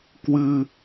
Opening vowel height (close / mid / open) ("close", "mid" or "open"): close